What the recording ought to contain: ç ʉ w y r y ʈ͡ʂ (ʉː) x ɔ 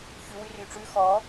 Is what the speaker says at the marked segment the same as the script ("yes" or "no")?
yes